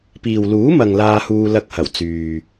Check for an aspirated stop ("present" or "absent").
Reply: absent